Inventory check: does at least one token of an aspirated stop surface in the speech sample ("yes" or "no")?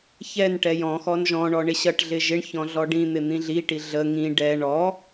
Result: no